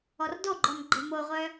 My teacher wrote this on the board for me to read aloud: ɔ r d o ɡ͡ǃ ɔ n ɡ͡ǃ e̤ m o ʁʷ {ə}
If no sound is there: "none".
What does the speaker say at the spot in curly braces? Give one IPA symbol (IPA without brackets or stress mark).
œ